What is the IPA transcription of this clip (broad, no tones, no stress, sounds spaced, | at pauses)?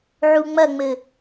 ʕ u ŋ͡m ɐ ŋ͡m ɘ